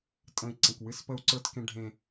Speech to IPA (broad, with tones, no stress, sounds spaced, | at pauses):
tʼ ə̃˨ i̯ ǀ ə̃˨ k w ɨ˦ s p ə˦ u̯ ǀ ə˞˦ t k ẽ˦ ɖʱ ẽ˦